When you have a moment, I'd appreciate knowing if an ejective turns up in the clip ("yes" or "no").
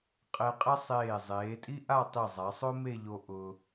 yes